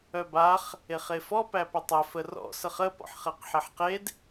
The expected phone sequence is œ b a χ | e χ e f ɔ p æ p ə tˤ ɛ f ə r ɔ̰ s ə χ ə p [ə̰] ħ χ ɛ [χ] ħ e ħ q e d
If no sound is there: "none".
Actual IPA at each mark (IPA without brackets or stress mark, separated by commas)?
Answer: ɔ̰, q